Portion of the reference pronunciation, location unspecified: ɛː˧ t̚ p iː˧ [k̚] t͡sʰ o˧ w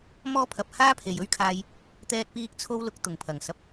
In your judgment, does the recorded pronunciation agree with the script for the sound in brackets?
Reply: yes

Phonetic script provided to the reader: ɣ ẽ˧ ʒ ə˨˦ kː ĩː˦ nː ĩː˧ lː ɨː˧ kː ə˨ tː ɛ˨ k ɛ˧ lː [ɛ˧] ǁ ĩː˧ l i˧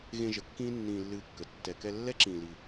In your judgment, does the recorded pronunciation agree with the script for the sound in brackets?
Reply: no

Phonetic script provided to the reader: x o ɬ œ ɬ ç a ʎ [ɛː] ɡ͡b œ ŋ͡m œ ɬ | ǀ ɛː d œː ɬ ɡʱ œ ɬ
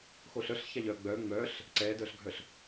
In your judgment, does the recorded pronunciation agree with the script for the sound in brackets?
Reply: no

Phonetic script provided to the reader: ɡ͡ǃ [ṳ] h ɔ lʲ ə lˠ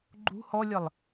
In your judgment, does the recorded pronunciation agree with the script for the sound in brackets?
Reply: yes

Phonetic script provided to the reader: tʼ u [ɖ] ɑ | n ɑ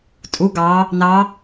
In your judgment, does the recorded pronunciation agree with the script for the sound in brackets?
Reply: no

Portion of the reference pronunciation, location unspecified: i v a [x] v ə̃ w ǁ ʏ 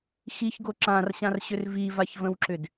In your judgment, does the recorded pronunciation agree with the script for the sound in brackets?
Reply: no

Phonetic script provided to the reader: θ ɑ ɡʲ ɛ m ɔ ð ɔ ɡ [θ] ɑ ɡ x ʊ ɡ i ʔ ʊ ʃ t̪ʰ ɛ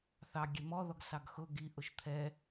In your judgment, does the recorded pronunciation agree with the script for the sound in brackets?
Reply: no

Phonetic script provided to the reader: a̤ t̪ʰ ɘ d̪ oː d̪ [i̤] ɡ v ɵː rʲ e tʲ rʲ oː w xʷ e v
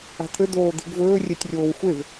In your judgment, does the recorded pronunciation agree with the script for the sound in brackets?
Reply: yes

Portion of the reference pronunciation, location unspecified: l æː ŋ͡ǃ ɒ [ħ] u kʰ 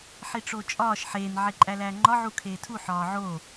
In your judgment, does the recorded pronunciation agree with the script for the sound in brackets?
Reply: no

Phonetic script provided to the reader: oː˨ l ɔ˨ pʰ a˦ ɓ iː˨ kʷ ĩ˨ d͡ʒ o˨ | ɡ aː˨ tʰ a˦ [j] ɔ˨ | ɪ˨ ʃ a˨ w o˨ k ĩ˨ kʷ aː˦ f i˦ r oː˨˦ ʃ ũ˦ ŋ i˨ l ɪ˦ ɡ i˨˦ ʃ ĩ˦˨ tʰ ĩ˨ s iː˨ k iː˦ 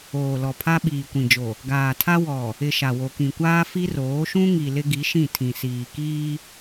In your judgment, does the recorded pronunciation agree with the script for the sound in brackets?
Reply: no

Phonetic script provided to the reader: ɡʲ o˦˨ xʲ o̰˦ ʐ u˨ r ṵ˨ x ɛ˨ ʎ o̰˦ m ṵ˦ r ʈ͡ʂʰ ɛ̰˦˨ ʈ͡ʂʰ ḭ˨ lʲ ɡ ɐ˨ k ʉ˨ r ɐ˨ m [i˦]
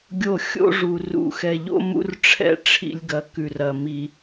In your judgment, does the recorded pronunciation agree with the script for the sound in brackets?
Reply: no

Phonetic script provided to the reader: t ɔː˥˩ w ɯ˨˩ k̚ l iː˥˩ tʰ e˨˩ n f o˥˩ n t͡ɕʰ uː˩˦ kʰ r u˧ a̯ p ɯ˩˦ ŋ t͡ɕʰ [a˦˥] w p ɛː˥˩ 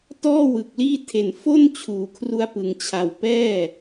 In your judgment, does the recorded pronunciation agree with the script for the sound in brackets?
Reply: no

